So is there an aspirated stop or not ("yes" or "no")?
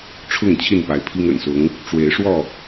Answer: yes